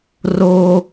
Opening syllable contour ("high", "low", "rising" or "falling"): high